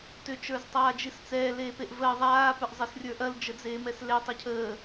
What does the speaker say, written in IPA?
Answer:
t ʏ t͡ʃ ə˞ z tˤ aː d͡ʒ i s t͡s ɛː l eː p e ʔ v əː ðˤ aː p ʏ ʔ zˤ e s rʲ ə˞ ʔ ɐ l d͡ʒ ə d͡z eː m ɛ s l e tˤ ɛ cʰ əː

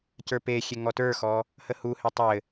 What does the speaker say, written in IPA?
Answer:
c ə˞ p e xʲ e ŋ ɔ t ə˞ x ɔ | h ə h u h e tˤ ɘ

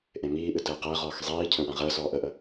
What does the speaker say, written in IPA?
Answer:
ʔ ẽ m iː ʔ ɨ t əː q əː ʁ ɔː x zˤ iː cʰ ə̃ w ã ʁ əː s ɔː ʔ ə ʔ ə

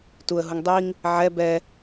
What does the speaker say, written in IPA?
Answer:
t u ə̯ ɦ u ŋ dˤ i ŋ | ʕ ɛ b ɛ

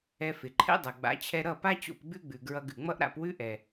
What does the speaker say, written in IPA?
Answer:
ɛ˧ f ɪ˩ ǃʰ ɛ̰˥ dˤ ʌ˩ ɡ͡b a̰˩˥ t͡ɕʰ ɛ˧ ɾ ʌ˥˩ p a˥ t͡ɕ o̰˥˩ p ɡ͡b ʉ˥ ɡ͡b ʉ˩ ɡ ɹ ʌ˧ ɡ ʉ˩ ŋ͡m ʌ˥ ʔ ɾ a̰˧ p w ʉ˥ ʔ ɛ˩

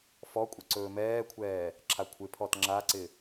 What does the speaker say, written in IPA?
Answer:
f ɔ kʷʼ ɘ ǀ ɵː m ɛː kʷʰ ɛː | ǁʰ a kʷʰ ɪ pʰ ɔ t ŋ͡ǁ a ǀ ɪ

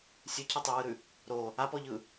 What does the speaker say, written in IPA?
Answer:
sʲ ʉ cʰ ʌ tˤ ʉ w ɯ ɾ ʉ | ɾ o | a p ɔ ʎ ɯ

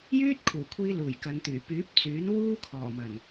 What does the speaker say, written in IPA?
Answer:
j yː˥ t̚ kʰ uː˨˩ kʷʰ iː˧ l uː˨˩ j k ɐ˨˧ n t̪ yː˨˩ p yː˨˥ p̚ t͡s yː˨˥ n w uː˥ kʰ ɔː˨˩ m ɐ˨˩ n

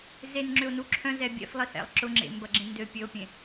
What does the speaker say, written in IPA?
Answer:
z e n ŋ͡ǁ ʏ o̯ n u ǁʰ œ̃ z ɛ bʲ ɛ̰ f lˠ i h ɛ̰ lˠ ǁ ʊ ŋ͡ǁ ḛ m b ɐ ɡ͡ǁ ẽ n d ø pʲ ø o̯ pʲ ẽ

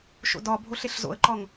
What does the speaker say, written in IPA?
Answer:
ʃ o̰ d ɒ bʱ o ɬ e ɬ z o̰ ə̯ ǃ ɒ ŋ

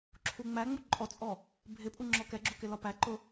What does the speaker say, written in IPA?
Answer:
ǁʰ u ŋ͡m æ ŋ͡m u ǃʼ ɔ t͡sʼ ɔ | bʱ ɪ pʼ u ŋ͡ǁ ɔ k ɛ ɡ͡ǁ u k ɪ l ɒ p æ ǃ ʊ

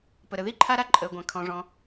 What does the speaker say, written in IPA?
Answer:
p ə˩ ɾ ə˩ ð i˥ ǃʰ a˥ ɾ a˥ ǃʼ əː˩ ɡʷ ã˩ kʰ ɔ̃˩ ʐ ɔ̃˩

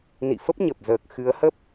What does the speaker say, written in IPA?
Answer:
n ḭ˧˨ f ə˦˥ p̚ ɲ ə˨˩ p̚ z əː˨˩ k̚ x ɨ˨˦ ə̯ h ə˦˥ p̚

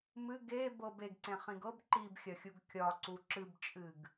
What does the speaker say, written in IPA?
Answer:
m ɨ ɡ e b ɤ b e ɡ ǀ ẽ χ ĩ ɡ ɤ b ǃ i b xʲ ɐ xʲ u ɡ kʲ ɒ ǀ u ǁ ɨ b t͡ʃʼ ɨ ɡ

